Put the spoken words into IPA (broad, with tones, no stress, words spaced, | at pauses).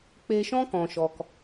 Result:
k͡pe˧ʃɔ̃˦ kɔ̃˨ʃɔ˨k